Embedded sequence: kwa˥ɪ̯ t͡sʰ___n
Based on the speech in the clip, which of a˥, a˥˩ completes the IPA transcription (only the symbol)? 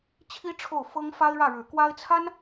a˥